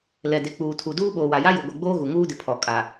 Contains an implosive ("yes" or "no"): yes